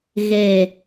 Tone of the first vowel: low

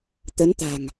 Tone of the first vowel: rising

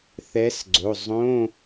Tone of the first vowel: rising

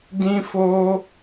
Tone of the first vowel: high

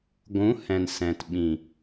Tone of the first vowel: rising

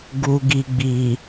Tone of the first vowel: low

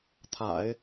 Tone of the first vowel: low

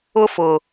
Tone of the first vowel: high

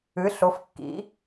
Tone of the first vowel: rising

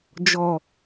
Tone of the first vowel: low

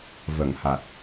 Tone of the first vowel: low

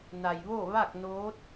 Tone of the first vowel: low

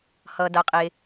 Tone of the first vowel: low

